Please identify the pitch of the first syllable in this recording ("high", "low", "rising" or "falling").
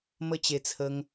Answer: high